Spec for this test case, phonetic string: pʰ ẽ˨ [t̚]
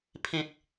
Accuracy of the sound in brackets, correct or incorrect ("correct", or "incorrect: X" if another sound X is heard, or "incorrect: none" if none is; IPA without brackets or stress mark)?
correct